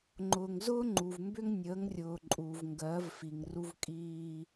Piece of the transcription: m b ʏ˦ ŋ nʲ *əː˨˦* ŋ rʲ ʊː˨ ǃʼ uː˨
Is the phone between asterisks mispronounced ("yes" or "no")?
no